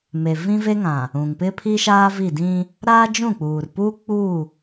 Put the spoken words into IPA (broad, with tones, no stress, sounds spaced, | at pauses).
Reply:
m e˨ v ĩ˦ v e˦ ŋ ã˨ | ũ˨ ŋ p ɪ˦ pʰ i˦ ʃ aː˦ v i˦˨ d ĩ˦ | ɾ aː˦ d͡ʒ ũ˦˨ k͡p uː˨ r p uː˦ k͡p u˦˨